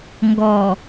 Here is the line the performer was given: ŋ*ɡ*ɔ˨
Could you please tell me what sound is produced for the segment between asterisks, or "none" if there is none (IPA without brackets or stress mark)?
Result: ɡ